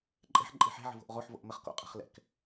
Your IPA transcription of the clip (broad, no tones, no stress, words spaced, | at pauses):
ǃʼɛ̤ħ ǃʼe̤ħɛ̤ ʕə̤vo̤ʔʁoħ vo̰ʔmɘχ ko̰ qʼə̤χlɛ̰k